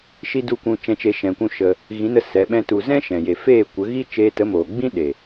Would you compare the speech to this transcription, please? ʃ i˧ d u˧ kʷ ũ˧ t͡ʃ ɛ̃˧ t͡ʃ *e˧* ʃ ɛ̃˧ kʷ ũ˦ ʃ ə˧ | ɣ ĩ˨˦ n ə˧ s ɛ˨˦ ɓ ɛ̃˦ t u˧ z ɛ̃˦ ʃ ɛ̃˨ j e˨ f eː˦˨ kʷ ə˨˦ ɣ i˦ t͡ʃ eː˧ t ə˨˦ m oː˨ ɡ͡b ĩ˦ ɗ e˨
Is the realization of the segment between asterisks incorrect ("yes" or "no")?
no